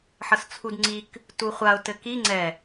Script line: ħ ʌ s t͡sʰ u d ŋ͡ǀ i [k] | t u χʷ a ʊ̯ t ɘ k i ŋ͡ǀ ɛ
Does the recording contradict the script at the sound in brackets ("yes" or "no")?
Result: no